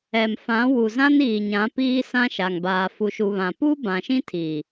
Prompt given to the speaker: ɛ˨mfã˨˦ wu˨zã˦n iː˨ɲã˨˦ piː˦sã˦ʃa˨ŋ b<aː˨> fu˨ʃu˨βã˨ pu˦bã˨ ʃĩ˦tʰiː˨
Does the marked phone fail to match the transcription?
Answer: no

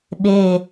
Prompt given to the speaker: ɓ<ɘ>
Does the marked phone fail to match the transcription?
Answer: yes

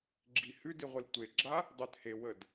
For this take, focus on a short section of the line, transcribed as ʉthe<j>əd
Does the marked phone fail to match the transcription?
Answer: yes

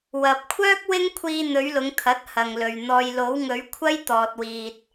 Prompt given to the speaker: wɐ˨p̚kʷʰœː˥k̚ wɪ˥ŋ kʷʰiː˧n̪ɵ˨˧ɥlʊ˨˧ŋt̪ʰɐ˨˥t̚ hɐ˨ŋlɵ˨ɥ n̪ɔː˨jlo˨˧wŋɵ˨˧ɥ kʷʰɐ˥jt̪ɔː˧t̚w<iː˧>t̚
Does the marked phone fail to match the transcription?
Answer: no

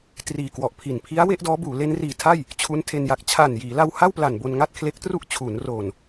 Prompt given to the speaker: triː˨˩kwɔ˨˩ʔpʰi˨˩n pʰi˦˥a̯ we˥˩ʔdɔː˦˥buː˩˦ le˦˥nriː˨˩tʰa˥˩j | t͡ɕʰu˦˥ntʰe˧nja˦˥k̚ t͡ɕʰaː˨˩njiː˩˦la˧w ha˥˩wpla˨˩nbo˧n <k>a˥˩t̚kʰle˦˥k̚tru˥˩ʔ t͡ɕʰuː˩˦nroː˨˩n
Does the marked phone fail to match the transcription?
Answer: yes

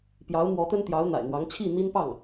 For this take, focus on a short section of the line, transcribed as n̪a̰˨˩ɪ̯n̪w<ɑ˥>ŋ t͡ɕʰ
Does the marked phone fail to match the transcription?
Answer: yes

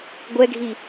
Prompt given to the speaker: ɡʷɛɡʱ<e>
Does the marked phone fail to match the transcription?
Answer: yes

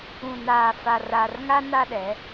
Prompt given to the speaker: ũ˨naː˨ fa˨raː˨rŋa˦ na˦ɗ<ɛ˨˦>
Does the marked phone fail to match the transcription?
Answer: no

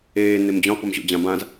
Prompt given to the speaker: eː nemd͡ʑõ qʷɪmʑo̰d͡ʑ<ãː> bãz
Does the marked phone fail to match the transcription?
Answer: yes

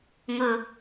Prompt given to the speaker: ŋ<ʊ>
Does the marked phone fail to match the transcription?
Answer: no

